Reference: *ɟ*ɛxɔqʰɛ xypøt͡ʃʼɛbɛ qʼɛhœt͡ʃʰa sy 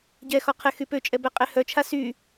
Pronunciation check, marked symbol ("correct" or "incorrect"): correct